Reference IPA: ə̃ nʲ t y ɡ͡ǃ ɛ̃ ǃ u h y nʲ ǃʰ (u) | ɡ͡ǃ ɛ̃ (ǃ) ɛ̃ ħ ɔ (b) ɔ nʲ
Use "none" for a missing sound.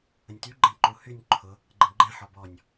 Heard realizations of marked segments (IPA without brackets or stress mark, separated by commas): ʊ, ɡ͡ǃ, b